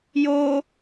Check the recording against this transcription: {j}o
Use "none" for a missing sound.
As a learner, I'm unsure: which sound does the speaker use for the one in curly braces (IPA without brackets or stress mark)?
j